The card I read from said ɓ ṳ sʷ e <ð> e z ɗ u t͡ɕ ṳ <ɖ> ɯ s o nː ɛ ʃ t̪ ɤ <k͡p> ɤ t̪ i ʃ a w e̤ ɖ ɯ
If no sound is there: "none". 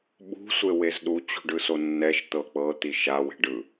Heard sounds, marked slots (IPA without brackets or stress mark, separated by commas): w, ɖ, k͡p